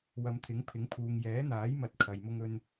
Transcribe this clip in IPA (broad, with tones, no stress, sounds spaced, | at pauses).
w ɐ˨˧ m t̪ʰ ɪ˨˥ ŋ pʰ ɪ˨˥ ŋ pʰ uː˨ ŋ j ɛː˨˥ n̪ aː˨˥ j m ɐ˨˥ t̚ kʰ ɐ˨ j m ʊ˥ ŋ ɵ˥ n